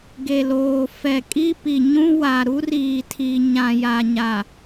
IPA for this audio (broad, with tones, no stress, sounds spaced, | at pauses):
ɡ e˨ l oː˨ f ɛ˨ kʼ i˦ p i˨ ɲ ũ˦ w a˨ ɾ u˦ r iː˨ tʰ i˨ ɲ ã˨ j a˨ ɲ a˨